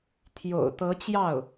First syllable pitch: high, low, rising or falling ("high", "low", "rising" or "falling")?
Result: low